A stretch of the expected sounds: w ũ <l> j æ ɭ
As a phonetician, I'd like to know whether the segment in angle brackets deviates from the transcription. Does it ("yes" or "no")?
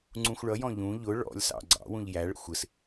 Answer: yes